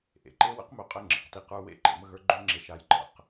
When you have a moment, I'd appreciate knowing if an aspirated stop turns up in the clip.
no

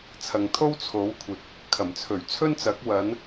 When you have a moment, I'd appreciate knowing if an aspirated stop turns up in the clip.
yes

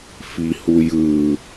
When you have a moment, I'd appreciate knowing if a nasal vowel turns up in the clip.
no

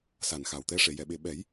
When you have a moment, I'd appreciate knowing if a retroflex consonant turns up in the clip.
yes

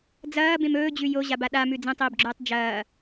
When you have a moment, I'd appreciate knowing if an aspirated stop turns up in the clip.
no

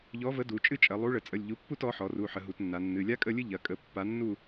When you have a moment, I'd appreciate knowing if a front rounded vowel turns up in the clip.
no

